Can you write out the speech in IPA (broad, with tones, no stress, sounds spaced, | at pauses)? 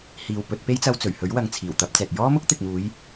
h iː˨ w p ɵ˧ t̚ p e˥ j t͡s ɐ˧ w t͡s ɵ˨˩ ɥ h ɵ˨˥ ɥ w ɐ˨˧ ŋ t͡sʰ iː˨˩ w t̪ ɐ˧ p̚ t͡s ɛː˨ t̚ j ɔː˥ m ʊ˥ k̚ t̪ ɪ˨ k̚ m uː˨˧ j